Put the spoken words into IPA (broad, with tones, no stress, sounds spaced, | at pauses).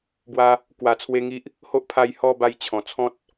b w a˧ | k w a˨˩ t͡sʰ w e˧ ŋ i˦ ʔ | h o˦ ʔ pʰ a˧ j h ɔ˥˧ b a˧ j t͡ɕʰ ɔ̃˨˩ t͡sʰ ɔ̃˦ t̚